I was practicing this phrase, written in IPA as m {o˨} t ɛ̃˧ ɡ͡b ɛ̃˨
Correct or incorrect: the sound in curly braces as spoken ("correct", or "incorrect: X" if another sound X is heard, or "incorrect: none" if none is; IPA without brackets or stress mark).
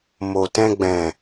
correct